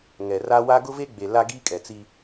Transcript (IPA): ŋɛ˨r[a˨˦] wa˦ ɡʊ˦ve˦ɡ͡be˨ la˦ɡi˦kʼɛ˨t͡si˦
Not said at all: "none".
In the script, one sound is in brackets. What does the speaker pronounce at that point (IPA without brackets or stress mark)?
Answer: a˦